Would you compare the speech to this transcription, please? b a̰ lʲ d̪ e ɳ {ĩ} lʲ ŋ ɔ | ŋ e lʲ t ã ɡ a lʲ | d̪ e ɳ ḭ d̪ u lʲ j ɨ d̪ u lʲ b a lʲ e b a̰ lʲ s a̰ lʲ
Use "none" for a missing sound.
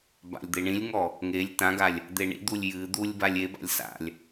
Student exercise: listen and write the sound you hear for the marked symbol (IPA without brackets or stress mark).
ĩ